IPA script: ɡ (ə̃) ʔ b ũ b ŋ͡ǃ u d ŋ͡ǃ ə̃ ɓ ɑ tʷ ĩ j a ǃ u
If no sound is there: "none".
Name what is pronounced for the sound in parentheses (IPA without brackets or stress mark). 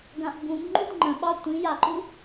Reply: ã